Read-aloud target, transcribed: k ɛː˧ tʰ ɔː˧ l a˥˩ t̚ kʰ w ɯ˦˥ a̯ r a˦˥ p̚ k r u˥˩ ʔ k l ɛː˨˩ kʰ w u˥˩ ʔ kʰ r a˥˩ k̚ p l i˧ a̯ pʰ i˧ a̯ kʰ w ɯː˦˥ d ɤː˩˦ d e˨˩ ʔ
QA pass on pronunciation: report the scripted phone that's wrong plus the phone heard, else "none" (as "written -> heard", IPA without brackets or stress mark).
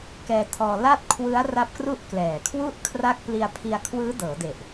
none